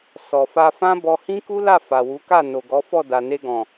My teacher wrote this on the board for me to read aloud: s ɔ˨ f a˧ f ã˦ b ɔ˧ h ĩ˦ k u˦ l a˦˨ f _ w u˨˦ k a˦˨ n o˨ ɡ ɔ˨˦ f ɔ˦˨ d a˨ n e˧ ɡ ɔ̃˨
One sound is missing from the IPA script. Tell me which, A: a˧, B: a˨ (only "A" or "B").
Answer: B